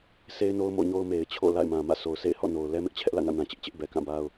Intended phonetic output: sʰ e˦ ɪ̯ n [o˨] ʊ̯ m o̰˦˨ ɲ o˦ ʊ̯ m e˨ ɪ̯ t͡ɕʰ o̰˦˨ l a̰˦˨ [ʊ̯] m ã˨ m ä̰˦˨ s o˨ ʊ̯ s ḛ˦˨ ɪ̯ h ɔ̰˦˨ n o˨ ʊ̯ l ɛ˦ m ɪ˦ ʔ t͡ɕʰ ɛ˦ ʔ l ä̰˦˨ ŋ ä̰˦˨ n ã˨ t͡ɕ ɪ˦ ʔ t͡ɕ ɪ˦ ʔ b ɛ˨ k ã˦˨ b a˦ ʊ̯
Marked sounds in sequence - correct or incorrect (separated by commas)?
incorrect, incorrect